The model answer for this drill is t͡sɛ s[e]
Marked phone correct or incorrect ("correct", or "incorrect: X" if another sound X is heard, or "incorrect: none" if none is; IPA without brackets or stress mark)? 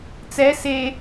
correct